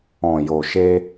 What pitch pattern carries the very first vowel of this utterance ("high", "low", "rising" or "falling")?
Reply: low